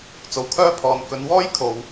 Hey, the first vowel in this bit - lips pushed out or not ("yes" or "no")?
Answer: yes